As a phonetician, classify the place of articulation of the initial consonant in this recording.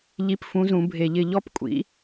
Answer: palatal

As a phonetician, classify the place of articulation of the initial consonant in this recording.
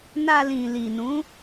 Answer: alveolar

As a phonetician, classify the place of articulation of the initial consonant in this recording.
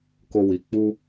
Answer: velar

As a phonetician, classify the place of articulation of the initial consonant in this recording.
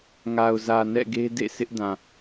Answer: velar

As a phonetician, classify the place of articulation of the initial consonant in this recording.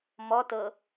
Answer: labial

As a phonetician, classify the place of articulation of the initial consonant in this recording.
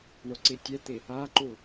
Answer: retroflex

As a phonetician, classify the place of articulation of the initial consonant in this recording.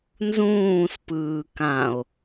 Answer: alveolar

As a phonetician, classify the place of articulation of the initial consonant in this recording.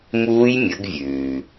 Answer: labial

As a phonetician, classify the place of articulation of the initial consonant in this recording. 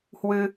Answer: glottal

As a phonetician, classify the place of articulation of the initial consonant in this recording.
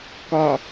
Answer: velar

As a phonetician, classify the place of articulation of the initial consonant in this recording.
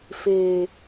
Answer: labial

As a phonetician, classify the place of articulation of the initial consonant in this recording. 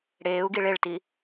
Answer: retroflex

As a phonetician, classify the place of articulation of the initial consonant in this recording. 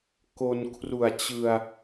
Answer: velar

